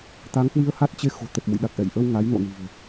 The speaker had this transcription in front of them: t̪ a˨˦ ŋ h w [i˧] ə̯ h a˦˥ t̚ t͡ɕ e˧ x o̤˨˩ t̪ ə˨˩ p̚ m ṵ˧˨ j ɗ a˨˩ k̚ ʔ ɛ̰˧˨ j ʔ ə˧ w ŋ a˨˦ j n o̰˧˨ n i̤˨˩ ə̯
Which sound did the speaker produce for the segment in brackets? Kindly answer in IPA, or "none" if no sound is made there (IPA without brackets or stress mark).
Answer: i˧